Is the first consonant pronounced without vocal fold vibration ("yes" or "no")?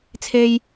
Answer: yes